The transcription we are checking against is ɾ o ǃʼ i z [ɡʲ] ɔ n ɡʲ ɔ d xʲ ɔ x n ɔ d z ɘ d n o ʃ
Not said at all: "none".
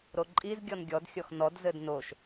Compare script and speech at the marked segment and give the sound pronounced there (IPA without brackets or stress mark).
ɡʲ